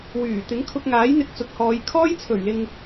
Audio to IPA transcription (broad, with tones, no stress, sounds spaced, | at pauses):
w yː˨˩ t̪ ɪ˨˥ ŋ kʰ ʊ˧ k̚ ŋ aː˨˥ j n̪ ɪ˧ k̚ t͡s ʊ˨ k̚ h ɔː˨˧ j kʰ ɔː˥ j t͡sʰ ɵ˨˩ ɥ l ɪ˨ ŋ